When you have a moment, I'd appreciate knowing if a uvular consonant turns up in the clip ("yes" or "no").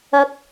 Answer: no